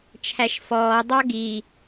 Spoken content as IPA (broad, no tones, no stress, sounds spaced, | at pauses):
t͡ʃʰ æ ʃ f ɔː dˤ ɑ ɡ i